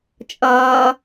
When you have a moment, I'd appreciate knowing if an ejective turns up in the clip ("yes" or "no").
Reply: yes